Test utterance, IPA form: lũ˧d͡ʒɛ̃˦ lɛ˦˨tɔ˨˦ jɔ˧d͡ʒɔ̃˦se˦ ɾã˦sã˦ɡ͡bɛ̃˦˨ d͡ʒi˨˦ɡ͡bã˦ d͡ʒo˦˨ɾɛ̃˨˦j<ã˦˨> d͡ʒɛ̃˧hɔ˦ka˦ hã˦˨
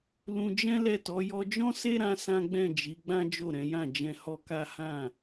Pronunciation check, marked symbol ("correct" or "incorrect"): correct